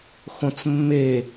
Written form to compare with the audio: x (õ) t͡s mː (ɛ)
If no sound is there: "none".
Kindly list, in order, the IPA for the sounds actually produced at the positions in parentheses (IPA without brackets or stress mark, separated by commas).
õ, e